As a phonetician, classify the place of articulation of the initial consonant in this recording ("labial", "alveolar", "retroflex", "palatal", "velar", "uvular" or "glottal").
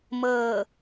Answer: labial